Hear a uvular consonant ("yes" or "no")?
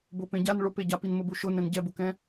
no